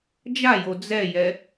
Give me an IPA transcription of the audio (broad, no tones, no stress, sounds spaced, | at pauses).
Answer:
d͡ʒ a j o d͡z ɛ j ɛ